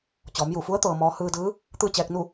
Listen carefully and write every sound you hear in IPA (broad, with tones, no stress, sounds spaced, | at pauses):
t͡ɕ ɔː˩˧ m j u˧˩ f u˧˥ ə̯ t̪ ɤː˧ m ɔː˧˥ h ɯː˧ d ɯː˧˥ | t̪ ɯː˥˨ t͡ɕ ɛː˧ k̚ n u˥˨